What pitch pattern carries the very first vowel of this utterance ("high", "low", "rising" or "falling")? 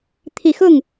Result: low